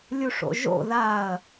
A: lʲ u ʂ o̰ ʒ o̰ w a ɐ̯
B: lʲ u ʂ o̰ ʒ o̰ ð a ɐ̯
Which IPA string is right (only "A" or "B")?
B